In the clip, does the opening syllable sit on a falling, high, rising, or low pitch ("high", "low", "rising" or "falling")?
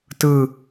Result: low